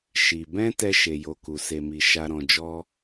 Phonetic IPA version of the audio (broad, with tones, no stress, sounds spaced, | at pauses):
ʃ i˧ b ɛ̃˦ t ɛ˦ ʃ e˧ j o˧ k u˧ s e˦ m i˦ ʃ a˦ ɾ ɔ̃˦ d͡ʒ ɔ˦